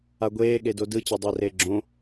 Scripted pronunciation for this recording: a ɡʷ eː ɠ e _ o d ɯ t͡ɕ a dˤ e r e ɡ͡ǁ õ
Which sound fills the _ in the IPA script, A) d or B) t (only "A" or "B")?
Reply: A